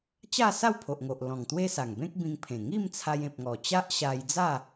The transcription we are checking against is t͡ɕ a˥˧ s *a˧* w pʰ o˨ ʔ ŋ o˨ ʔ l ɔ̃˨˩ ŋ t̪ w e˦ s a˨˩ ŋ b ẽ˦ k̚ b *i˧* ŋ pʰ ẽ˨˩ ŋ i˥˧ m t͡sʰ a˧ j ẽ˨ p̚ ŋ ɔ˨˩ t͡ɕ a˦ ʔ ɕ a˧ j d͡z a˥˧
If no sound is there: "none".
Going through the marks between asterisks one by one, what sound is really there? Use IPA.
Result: a˥˧, ĩ˧

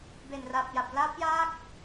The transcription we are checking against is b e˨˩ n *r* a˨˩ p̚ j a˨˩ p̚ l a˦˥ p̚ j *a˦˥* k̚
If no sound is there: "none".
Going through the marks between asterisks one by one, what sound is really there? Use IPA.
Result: r, a˦˥

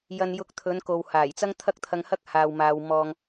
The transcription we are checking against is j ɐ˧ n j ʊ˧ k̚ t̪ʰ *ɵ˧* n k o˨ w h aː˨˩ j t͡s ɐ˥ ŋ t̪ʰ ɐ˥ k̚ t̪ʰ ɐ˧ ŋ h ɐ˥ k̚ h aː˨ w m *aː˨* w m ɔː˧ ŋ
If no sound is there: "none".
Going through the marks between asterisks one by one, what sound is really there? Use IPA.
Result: ɵ˨˧, aː˨

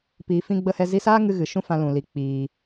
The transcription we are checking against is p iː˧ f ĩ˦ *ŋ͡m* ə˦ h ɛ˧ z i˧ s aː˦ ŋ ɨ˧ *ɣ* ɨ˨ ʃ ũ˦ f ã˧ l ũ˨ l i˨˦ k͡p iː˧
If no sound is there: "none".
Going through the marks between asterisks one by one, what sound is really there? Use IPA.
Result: ɡ͡b, ɣ

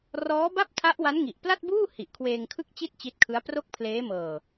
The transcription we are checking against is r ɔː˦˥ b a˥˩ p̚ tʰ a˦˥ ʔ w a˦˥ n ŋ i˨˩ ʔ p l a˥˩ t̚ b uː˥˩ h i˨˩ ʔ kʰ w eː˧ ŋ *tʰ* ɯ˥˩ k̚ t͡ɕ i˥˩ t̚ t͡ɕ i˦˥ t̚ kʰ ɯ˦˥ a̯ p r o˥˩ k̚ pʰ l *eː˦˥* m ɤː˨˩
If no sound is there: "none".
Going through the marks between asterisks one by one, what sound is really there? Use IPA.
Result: kʰ, eː˦˥

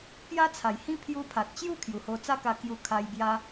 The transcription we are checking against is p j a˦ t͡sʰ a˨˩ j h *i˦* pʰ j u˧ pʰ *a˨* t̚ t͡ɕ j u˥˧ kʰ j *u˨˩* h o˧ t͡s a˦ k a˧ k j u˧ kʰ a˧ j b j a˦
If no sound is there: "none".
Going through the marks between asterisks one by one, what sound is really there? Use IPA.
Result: ĩ˦, a˨, u˨˩

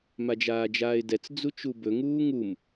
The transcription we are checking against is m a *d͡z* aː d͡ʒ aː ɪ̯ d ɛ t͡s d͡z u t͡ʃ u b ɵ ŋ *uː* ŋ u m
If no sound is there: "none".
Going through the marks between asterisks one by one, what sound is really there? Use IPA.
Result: d͡ʒ, uː

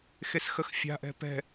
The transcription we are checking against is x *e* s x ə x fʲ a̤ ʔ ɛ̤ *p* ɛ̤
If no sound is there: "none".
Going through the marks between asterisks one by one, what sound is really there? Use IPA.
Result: e, p

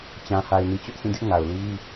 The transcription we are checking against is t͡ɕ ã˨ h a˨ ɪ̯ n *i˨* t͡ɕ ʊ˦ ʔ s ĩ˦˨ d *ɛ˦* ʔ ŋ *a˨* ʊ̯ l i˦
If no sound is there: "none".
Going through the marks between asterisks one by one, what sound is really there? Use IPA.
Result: i˨, ɪ˦, a˨

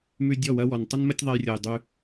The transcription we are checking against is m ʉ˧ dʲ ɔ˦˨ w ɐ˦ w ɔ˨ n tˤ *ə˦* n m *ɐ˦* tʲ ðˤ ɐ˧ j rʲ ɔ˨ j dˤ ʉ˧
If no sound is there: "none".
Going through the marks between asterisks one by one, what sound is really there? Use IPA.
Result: ə˦, ɐ˦

